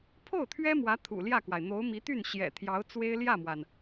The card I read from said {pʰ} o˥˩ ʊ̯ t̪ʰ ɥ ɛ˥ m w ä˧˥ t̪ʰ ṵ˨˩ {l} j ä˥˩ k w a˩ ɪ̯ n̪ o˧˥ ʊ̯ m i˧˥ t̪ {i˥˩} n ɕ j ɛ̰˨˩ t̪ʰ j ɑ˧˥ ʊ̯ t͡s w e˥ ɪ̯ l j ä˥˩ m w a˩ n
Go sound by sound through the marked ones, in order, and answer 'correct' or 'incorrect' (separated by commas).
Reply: correct, correct, incorrect